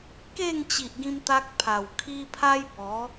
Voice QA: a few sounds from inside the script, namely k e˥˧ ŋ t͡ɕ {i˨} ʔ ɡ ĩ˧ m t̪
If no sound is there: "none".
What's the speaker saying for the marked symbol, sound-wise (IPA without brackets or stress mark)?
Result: i˨